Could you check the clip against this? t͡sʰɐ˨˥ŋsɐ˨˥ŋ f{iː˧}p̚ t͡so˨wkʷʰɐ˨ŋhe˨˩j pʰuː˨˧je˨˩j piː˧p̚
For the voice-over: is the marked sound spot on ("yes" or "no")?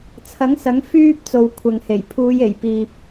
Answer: no